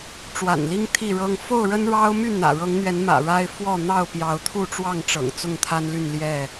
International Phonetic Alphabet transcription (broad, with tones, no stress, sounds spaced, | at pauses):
ʈ͡ʂ w a̰˨˩ n l i˦ ŋ t̪ʰ i˥˨ ɻ ɤ˦ ŋ f o˥˨ ʊ̯ ɻ ə˦ n ɻ ɑ˦ ʊ̯ m y˥˨ n̪ ä̰˨˩ ɻ ɤ˨˦ ŋ n̪ ɥ ɛ˨˦ n m ä̰˨˩ ɻ a˦ ɪ̯ f w ɔ˥˨ n̪ ɑ˥˨ ʊ̯ p j ɑ˨˦ ʊ̯ t̪ʰ u˥˨ ʈ͡ʂ w ɑ˥˨ ŋ ʈ͡ʂ ɤ̰˨˩ ŋ t͡s ʊ˥˨ ŋ t̪ʰ a˦ n l y˥˨ n l j ɛ˥˨